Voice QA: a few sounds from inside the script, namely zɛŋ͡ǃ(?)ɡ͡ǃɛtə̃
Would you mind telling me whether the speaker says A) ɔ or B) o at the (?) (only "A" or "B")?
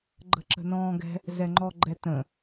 A